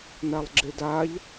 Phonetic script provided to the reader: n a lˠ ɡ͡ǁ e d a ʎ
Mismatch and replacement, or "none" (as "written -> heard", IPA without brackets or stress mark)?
none